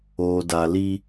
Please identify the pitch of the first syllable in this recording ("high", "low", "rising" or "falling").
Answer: low